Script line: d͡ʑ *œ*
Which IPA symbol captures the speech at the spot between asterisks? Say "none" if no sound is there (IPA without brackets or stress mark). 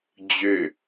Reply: ø